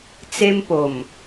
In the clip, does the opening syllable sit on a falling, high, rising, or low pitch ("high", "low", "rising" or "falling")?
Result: high